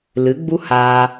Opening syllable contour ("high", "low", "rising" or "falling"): rising